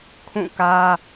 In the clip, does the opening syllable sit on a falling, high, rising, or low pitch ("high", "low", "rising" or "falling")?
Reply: falling